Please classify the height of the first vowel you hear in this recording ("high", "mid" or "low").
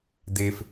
mid